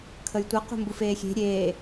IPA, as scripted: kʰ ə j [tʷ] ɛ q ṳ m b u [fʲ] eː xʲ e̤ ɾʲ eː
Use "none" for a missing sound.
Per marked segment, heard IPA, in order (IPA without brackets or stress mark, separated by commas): tʷ, f